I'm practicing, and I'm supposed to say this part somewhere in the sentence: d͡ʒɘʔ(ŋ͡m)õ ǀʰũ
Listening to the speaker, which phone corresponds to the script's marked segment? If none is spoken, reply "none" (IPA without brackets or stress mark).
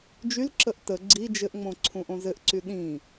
ŋ͡m